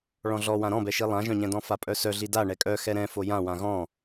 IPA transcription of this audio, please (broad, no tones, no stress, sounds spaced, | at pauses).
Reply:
ɭ ɔ̃ ɮ ɔ w ã ɾ ɔ̃ b ɛ ʃ i lˠ ã ʒ œ̃ ɲ ɛ̃ d ɔ̃ f a pʼ œ s œ ɮ i d a ɳ ɛ kʼ œ x ɛ ɾ ɛ̃ f o j ã w ã ɣ ɔ̃